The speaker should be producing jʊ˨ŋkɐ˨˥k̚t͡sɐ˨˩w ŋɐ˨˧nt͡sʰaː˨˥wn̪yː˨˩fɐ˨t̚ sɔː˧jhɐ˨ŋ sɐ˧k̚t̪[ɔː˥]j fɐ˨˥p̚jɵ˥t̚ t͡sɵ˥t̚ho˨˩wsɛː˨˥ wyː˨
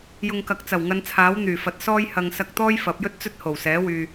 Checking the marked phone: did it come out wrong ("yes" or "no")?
no